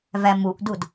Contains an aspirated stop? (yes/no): no